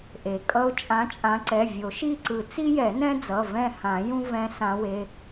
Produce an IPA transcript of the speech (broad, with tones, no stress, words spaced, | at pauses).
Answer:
ʔe˩kʼʌ˦ʊ̯ t͡ʃʼã˨˦t͡ʃʼã˨˦ǀɛ˩˧˩ vʲo˨˩˦ʃi˦˨ǀɯ˨˩˦ t͡si˦jɛ˨˩˦nɛ̃˦d͡zʌ˩˧˩ vɛ̃˦˨hã˨˩˦ jũ˦vɛ̃˨˦ sã˨˦we˩˧˩